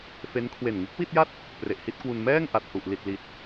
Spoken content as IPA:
f e˦˥ n kʰ w e˨˩ n ŋ ɯ˦˥ k̚ w i˥˩ t̚ j a˥˩ t̚ | p r e˨˩ ʔ h i˥˩ t̚ k w u˧ n m ɛː˥˩ ŋ ʔ a˨˩ t̚ h u˨˩ ʔ l i˨˩ t̚ l i˨˩ t̚

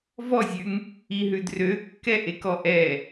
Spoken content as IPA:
v ɔ zʲ ʉ ŋ | i ɦ ʉ d r ø kː ɛ ʔ e k ɔ ʔ ɛ

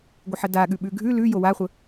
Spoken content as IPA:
ɡʷ ə ħ ə d a ɠ ʉ ɓ ʉ ɡʱ ʉ l ʉ j o w a χʷ ə

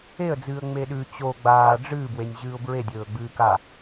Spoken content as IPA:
e ə̯ d͡z ɨː ə̯ ŋ͡m e ɗ ʉ t͡ɕ o ɡ͡b aː ɖ͡ʐ ɨː b w e nʲ ʑ ɨː ʊ̯ b ɹ e dʲ ɵː ɡ͡b ɨː k a

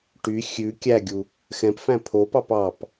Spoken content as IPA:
ʈ y xʲ ʉ kʲ æ ɡʲ u | x ɛ̃ p f æ̃ pʰ o p ɑ p ɑ p

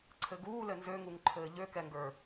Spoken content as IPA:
ǀʰ ɘ ɡ uː l ɘ n z ø ŋ u ŋ ǃʰ ɘː ʎ ø k ɛ ŋ ɡ ə˞

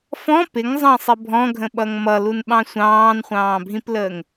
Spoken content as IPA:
f ɔ̃ p ɪ ŋ zˤ ɑ̃ sˤ ɪ bʱ ɔ̃ ɡʱ ə̃ ɓ ʌ ŋ m ʌ l u n ɓ ɑ̃ sʷ ɑ̃ː n χʷ ɑ̃ː bʱ ĩ p l əː ŋ

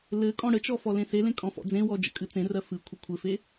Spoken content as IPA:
l ɘ kʼ ɔ̃ ɽ ə t͡ʃ ɔ f ɔ l ẽ s e l ẽ kʼ ɔ̃ f ɔ̰ d͡z ẽ w ɔ d͡ʒ ə̰ kʼ ɨ t͡s ẽ r ɜ f ɨ kʷʰ ə kʷʰ ɘ f e

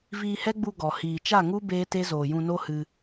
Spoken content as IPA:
v iː˧ h ɛ˦ ɡ͡b u˧ ɡ ɔ˨ h iː˨ t͡ʃ a˦˨ ŋ u˦ b eː˦ t e˦ z oː˨ j ũ˧ n o˦ h ɨ˧

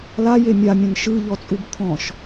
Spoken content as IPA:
l a j e mʲ a mʲ ɐ̃ n ʃ ɯ ʎ ɔ t͡sʼ u b t̪ʰ ɔ̃ ʃ

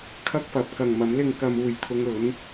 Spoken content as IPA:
kʰ ɐ˥ k̚ f ɐ˨˥ p̚ k ɐ˨ ŋ m ɐ˨˥ m l ɪ˧ ŋ k ɐ˧ m uː˨ j t̪ʰ ʊ˧ ŋ ɵ˨˧ n

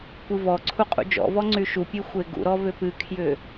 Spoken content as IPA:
kʷ ɨ v ɔ ǀʰ u qʼ ṵ d͡ʒ ɔ̰ v ɔ ŋ͡ǀ y ʃ u pʲ e xʷ e ɡ ṵ ɾ ɔ v ʏ p ɨ kʰ j ʏ

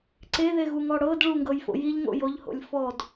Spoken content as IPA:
ǀ e ð e ɣ u ŋ ɔ ɽ ɤ d ɭ u ŋ ɡ ɤ j f o̰ j i ʎ ŋ o̰ j o ʎ h o̰ lʲ f ɔ d

